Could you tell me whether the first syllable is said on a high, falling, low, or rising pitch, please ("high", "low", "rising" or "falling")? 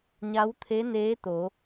rising